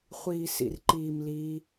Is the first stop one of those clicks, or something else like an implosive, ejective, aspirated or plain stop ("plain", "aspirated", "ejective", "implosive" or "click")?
click